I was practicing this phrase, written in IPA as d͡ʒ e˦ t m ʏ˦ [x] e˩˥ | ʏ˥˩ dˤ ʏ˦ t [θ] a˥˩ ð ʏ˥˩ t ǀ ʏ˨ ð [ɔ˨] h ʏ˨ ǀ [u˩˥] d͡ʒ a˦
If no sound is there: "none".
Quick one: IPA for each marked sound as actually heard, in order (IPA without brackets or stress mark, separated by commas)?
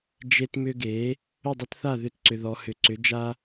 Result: ɡ, θ, ɔ˨, ʏ˩˥